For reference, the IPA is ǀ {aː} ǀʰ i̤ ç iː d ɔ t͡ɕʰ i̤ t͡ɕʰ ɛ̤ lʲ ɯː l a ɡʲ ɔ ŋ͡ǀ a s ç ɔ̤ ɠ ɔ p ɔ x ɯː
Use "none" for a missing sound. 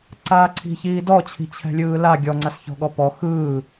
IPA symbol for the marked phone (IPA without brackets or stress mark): aː